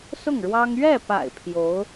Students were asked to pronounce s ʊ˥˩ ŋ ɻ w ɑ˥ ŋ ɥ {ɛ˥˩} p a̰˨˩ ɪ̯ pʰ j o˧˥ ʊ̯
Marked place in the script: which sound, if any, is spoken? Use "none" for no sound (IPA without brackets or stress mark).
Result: ɛ˥˩